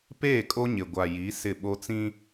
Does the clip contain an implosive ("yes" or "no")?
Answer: yes